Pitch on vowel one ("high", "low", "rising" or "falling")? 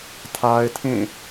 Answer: high